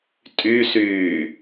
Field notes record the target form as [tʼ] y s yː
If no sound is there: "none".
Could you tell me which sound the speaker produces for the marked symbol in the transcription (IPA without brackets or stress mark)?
tʼ